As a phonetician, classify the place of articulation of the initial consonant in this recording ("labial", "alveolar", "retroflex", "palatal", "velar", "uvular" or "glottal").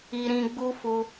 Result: alveolar